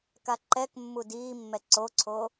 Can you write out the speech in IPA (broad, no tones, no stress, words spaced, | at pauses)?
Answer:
kaǃɛkmːu diːmːɛ ǀoǀʰo